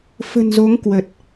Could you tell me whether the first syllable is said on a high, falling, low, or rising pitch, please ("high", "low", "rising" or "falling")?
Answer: low